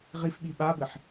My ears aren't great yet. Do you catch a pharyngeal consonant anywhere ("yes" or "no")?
yes